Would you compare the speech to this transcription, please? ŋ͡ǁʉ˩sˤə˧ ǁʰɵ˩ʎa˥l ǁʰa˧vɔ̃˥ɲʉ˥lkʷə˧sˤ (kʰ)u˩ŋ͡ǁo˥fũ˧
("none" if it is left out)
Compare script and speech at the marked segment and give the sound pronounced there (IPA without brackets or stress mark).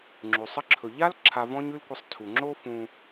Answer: tʰ